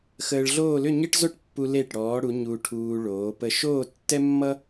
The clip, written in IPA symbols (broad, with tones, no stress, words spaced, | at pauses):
xəː˧ɭɮoː˥˧ lʏ˥˧ɲe˥ʈzo˥ʈpːu˧ le˧˩ʈɽɔː˩˧ɽu˩˧ ɲu˧ʈʰuː˧ ɭoː˩˧pə˧ ʃoː˥˧tːɛ˥mːʌ˥